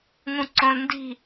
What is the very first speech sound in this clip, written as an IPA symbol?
ŋ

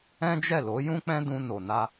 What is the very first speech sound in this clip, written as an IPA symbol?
ɛ̃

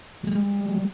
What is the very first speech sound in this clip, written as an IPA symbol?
r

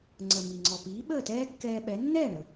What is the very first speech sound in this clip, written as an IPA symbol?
ŋ͡ǀ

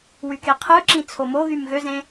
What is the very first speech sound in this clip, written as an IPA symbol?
w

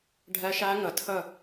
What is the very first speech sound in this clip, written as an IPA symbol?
ɖʱ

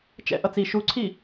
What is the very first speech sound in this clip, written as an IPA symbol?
t͡ʃ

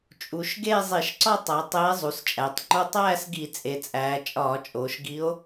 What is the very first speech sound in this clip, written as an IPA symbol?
t͡ʃʼ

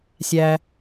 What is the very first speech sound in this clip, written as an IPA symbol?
sʲ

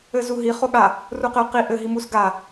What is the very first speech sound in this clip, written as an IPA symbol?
ɘ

